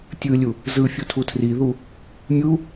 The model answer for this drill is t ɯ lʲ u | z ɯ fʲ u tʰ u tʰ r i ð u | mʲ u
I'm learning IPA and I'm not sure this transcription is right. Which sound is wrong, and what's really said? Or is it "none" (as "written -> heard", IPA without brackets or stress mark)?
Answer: t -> tʲ